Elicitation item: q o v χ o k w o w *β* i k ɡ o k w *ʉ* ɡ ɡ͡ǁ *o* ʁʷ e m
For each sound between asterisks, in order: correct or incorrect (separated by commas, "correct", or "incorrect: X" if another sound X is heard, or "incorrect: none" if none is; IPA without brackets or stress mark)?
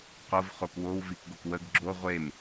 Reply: incorrect: v, incorrect: ə, correct